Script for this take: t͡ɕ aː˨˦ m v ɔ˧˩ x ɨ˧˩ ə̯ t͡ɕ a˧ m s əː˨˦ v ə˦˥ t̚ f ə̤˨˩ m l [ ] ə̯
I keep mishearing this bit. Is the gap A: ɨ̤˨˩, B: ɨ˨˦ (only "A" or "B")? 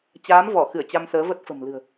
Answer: A